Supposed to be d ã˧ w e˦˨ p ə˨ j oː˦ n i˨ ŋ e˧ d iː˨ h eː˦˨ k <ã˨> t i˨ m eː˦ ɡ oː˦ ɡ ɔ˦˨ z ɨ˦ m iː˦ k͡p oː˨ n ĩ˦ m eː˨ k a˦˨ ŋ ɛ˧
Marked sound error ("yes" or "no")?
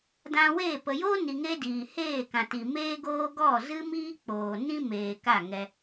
no